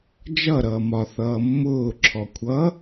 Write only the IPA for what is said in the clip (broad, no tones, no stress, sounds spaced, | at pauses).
d͡ʒ ʌ ɾ ʌː m ɒ θ ʌː mː ʊː ǁʰ ɔ kʷʰ ʌ